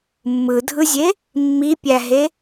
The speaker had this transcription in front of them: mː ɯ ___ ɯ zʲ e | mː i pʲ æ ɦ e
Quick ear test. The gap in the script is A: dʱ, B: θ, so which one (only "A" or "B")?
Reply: A